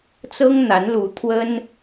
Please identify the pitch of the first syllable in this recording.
high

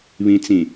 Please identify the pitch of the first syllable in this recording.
low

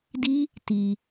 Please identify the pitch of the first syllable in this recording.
high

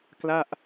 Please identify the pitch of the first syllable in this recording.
falling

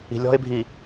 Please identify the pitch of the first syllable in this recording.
low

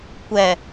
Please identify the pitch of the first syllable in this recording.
low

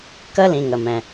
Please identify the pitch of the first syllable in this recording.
high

